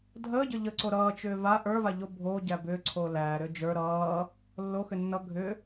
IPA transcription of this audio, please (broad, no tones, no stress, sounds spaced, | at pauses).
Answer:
dʱ əː ɟ ə ʎ ə ǀ o ɾ ʌː t͡ʃ ʏː v a ʔ ə˞ v a ʎ o bʱ o ɟ æ b ʏː ǀʰ oː l æː ɾ ʏː d͡ʒ ə˞ ɾ ʌː | lː o x ʏ nː ʌ ɡʱ ʏ